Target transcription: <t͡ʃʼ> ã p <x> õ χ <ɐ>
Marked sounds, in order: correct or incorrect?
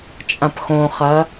correct, correct, correct

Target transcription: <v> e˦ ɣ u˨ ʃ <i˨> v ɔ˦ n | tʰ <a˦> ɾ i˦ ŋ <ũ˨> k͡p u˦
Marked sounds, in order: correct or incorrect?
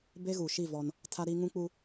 incorrect: b, incorrect: i˦˨, correct, incorrect: ũ˦

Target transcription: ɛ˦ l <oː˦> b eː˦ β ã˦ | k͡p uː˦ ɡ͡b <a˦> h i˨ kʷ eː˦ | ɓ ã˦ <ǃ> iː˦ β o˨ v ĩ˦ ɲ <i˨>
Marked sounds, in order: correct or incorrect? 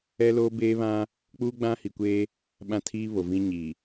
correct, incorrect: ã˦, incorrect: tʰ, correct

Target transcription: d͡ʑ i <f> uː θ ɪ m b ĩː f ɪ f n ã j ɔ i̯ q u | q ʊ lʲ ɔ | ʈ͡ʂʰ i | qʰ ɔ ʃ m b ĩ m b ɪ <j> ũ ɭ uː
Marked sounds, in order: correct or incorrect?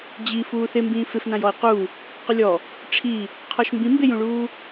correct, correct

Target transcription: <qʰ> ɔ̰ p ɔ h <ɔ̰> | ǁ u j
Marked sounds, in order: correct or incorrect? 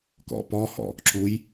incorrect: k, correct

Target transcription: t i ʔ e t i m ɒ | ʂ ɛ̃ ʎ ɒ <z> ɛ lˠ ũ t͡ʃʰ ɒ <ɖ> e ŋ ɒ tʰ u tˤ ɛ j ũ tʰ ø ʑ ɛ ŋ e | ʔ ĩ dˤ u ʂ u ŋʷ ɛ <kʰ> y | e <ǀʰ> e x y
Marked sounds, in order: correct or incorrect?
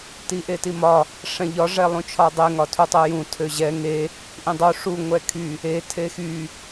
incorrect: ʐ, incorrect: dˤ, correct, incorrect: tʰ

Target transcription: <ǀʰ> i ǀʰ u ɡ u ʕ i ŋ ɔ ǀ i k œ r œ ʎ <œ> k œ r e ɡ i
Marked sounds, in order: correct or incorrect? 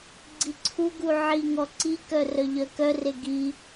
incorrect: ɡ͡ǀ, correct

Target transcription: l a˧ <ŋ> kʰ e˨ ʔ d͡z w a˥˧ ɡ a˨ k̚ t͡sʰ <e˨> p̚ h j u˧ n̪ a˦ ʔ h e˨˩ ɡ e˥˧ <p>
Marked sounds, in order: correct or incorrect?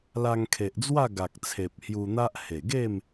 correct, correct, incorrect: m

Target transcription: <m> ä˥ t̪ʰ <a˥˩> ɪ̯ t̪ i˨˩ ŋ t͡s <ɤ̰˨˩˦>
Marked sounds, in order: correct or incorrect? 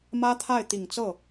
correct, correct, incorrect: ɤ˥˩

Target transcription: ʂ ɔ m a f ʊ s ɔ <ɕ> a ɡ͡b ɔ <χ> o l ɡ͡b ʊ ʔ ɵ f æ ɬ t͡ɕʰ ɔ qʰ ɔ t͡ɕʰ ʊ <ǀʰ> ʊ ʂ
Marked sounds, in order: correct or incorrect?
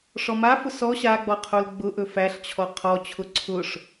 correct, incorrect: qʰ, correct

